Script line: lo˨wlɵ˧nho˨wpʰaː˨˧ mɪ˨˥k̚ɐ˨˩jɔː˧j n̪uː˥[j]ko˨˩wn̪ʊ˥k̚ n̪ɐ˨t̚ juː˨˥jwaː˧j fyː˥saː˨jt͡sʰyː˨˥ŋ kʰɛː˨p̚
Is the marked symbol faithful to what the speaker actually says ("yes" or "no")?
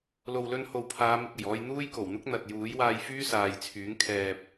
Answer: yes